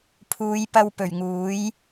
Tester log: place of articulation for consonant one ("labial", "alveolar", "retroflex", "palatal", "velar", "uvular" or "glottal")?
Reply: labial